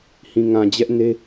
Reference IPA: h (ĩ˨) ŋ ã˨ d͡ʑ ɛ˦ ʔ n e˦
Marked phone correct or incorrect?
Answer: correct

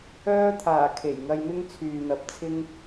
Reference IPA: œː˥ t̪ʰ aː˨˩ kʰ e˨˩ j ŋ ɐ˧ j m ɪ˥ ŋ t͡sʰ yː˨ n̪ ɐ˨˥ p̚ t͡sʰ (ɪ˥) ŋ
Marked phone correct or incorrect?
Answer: correct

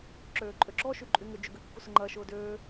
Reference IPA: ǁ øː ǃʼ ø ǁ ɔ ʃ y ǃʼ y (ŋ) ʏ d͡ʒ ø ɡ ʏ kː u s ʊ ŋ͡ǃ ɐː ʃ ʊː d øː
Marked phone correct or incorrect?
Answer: correct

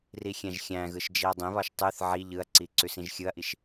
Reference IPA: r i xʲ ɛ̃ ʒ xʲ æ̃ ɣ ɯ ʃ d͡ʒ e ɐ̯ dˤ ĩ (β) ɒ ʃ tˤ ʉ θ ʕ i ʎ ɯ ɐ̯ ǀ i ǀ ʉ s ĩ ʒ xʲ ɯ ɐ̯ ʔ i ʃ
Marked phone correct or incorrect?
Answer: correct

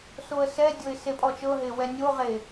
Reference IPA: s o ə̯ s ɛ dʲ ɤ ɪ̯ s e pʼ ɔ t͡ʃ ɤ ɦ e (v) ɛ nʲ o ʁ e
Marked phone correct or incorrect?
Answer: incorrect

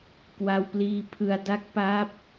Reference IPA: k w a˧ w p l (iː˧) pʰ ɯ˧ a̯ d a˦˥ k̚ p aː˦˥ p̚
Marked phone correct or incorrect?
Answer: correct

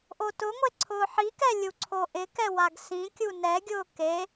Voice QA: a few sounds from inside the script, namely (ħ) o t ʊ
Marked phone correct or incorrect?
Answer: incorrect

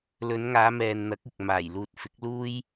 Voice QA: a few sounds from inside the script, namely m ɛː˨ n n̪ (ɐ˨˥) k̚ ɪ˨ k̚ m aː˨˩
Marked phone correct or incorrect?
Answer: correct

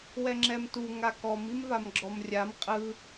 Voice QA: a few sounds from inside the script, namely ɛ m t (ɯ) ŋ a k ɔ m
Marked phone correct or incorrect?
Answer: incorrect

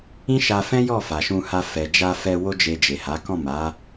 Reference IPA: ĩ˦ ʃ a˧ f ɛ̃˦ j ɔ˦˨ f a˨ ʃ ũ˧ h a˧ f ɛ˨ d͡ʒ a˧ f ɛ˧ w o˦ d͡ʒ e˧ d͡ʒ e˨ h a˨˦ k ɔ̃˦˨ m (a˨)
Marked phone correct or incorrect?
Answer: incorrect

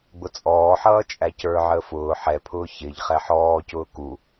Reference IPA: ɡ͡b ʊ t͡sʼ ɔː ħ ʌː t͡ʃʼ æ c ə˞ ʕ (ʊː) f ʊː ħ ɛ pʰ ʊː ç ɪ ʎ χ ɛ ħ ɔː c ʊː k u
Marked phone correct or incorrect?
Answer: incorrect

